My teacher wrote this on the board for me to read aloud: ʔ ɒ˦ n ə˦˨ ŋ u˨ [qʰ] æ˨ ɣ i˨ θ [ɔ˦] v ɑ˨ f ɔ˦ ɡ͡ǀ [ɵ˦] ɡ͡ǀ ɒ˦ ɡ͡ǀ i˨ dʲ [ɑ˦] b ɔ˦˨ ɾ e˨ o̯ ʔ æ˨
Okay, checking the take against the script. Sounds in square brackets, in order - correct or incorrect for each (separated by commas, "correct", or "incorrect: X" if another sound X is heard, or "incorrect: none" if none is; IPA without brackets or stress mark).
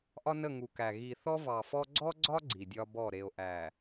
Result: incorrect: k, correct, incorrect: ɔ˦, incorrect: ɒ˦